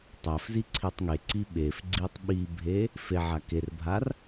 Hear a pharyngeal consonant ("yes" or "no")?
yes